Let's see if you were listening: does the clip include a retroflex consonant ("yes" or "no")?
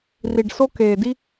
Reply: yes